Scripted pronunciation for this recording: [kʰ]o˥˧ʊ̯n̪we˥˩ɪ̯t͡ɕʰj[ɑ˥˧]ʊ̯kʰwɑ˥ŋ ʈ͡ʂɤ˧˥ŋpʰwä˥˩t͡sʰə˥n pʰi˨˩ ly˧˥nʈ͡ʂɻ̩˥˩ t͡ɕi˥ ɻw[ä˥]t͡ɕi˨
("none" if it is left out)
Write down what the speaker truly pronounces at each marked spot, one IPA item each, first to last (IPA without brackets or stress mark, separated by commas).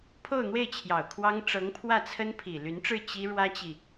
pʰ, ɑ˨˩, ä˥